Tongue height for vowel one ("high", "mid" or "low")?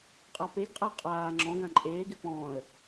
low